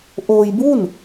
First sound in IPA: ʔ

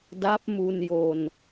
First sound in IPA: d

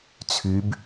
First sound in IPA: t͡sʰ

